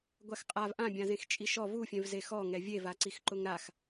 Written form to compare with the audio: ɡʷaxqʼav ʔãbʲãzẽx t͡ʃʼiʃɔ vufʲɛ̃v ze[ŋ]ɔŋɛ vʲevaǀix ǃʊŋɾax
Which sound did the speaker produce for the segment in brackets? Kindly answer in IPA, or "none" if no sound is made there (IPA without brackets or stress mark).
x